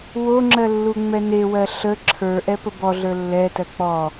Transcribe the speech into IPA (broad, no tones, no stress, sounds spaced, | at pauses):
w o ŋ͡ǁ ɜ lː u ŋ͡m ɛ n e w ɜ ɬ ə ǁʰ ə˞ ʔ ɛ p ə b ɔ ɮ ə˞ lː ɛ t ɜ k͡p ɔ